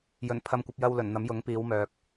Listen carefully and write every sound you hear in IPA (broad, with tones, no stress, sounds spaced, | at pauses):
j ɵ˨˩ n pʰ ɐ˧ m kʷ ɐ˧ p̚ j ɐ˧ w l ɵ˨˩ n n̪ ɐ˨˥ m j ʊ˨˥ ŋ p iː˨˧ w m œː˨ k̚